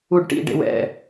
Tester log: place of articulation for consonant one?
retroflex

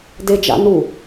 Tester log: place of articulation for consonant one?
alveolar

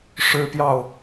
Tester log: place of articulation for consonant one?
retroflex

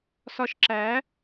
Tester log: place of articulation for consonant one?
alveolar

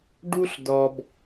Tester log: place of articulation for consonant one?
retroflex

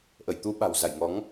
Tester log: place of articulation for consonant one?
glottal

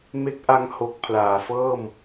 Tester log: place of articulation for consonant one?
labial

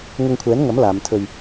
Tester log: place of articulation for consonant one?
velar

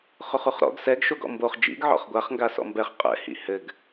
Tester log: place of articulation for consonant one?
uvular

